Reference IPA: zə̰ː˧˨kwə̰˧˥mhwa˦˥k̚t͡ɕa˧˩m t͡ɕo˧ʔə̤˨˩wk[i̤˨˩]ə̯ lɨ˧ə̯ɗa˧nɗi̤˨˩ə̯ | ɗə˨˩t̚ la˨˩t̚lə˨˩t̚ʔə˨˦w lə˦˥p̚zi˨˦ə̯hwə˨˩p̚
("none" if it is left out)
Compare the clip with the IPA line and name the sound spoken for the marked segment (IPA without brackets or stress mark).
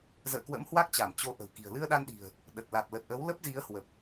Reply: i̤˨˩